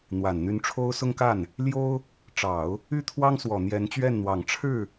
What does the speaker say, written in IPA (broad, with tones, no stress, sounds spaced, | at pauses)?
n̪ w a˨˩ n n̪ y˧˥ n ʈ͡ʂʰ o˥ ʊ̯ s ʊ˥ ŋ k a˥˩ n | l j o˥ ʊ̯ | ʈ͡ʂ ɑ˨˩˦ ʊ̯ | y˥ t̪ʰ w ɑ˥ ŋ s w ɔ˨˩ n̪ j ɛ˧˥ n t͡ɕ ɥ ɛ˥˩ n n̪ w ɑ˨˩ ŋ ʈ͡ʂʰ ɻ̩˥˩